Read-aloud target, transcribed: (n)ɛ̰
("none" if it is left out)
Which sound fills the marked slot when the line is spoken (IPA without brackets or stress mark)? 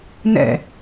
n